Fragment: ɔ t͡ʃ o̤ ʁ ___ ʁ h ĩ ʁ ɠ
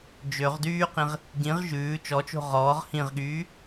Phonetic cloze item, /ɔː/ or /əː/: ɔː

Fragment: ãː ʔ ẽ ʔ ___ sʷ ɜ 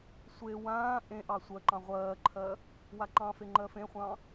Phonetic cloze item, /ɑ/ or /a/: ɑ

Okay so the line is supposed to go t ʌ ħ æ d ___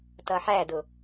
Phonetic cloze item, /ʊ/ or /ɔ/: ʊ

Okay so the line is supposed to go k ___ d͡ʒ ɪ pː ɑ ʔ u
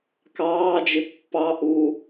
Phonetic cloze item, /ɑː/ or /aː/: ɑː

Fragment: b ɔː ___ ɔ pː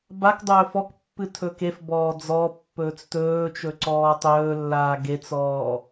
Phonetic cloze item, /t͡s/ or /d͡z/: d͡z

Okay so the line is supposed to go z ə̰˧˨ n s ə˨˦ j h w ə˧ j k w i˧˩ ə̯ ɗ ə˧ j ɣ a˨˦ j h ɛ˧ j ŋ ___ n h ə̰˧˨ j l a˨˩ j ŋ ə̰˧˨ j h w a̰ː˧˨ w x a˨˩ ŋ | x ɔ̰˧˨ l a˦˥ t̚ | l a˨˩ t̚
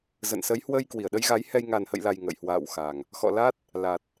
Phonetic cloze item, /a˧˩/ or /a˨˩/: a˨˩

